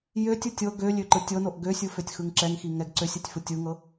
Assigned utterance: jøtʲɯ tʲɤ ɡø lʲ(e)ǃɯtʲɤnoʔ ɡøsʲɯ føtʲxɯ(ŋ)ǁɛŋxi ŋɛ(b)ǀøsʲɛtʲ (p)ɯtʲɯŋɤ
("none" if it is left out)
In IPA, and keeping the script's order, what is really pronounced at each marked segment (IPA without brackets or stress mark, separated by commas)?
ø, ŋ, ɡ, f